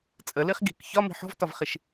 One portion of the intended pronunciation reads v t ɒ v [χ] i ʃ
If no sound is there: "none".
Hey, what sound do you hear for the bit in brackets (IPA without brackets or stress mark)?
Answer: χ